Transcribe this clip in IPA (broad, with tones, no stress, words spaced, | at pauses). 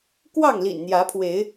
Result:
kwɑ˥˨ŋlḭ˨˩nn̪jä˨˦pʰwe˨˦ɪ̯